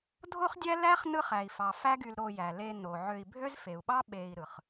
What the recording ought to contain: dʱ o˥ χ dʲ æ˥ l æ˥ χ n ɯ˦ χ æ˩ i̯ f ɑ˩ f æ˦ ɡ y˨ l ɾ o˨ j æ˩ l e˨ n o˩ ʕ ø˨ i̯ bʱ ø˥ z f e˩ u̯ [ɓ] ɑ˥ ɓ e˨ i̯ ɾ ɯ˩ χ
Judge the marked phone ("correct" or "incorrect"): correct